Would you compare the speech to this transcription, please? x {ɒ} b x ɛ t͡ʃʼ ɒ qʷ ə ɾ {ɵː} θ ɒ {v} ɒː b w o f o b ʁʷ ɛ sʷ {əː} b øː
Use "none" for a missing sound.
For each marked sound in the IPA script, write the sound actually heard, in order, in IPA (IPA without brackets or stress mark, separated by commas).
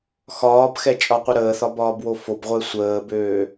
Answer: ɒː, əː, b, əː